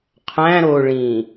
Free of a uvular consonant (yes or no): no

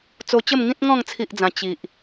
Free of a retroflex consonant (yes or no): yes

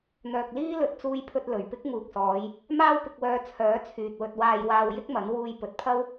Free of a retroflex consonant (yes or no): yes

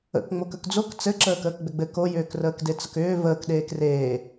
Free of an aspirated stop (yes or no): yes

